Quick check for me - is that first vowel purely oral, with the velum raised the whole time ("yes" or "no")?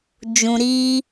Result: no